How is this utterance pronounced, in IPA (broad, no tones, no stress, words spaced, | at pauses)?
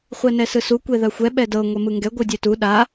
χʷɛnɛsɯsu kʷeðaxʷɛ ɓɛdɤ ŋʷɛmɯŋɡɛ ɡʷɯdʲetu ɗa